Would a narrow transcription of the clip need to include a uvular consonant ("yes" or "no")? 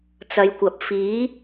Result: no